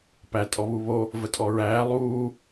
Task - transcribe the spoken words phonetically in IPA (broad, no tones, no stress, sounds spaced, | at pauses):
p æ tʼ ɔ β u β o | v ə tʼ ɔ ɹ æː lˠ uː